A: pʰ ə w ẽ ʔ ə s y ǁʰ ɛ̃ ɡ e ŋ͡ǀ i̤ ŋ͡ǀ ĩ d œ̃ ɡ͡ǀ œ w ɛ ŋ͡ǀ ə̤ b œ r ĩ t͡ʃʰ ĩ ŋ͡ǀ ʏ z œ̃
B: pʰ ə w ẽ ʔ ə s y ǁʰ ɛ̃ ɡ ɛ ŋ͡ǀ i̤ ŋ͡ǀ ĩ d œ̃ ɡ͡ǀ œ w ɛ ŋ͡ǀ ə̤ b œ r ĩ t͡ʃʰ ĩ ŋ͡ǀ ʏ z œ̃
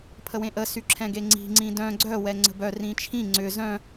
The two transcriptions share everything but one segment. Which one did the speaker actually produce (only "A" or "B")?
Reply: A